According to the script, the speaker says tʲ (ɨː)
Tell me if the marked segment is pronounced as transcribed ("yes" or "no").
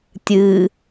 yes